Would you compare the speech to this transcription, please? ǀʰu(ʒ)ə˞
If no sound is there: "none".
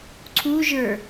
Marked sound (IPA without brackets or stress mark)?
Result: ʒ